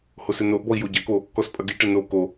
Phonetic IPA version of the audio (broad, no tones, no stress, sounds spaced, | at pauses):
h o s ɘ n o ʔ b ɔ i̯ j o ɟ ɐ k o | k ɔ s pʼ ɐ ɡ i ʈ ɘ n o k o